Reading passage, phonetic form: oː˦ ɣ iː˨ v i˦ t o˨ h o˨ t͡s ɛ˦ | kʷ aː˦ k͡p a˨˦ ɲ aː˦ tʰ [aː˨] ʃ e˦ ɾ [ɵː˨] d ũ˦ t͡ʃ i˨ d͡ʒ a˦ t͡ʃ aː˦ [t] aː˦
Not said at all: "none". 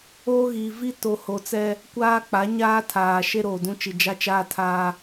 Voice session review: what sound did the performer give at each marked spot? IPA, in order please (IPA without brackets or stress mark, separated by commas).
aː˨, oː˨, tʰ